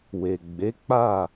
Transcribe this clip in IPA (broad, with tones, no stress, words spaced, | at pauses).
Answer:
we˨ ɡ͡be˨˦ k͡pa˦˨